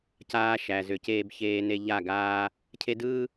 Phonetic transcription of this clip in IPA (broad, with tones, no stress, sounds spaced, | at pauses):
c aː˦ ʃ æ˨ z ʏ˨ c eː˦ b ç eː˦ n e˦ ʎ a˦˨ ɡ aː˦ | cʰ e˦ d ɯː˦